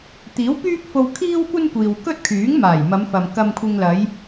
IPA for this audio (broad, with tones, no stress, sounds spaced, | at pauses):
t̪ iː˨˥ w p yː˥ k̚ f o˧ w kʰ iː˥ w kʷ ɐ˥ n kʷ iː˨ w k ɵ˥ t̚ kʰ yː˨˥ ŋ m aː˨˩ j m ɐ˨˧ m f ɐ˨ m k ɐ˧ m kʷʰ ɪ˧ ŋ l ɐ˨˧ j